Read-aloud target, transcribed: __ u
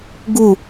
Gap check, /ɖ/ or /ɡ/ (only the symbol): ɡ